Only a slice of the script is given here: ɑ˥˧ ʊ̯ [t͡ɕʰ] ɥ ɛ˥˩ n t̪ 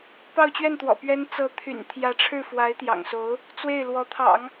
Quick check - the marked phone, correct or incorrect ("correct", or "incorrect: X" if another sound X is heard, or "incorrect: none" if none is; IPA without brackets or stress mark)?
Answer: incorrect: t͡ɕ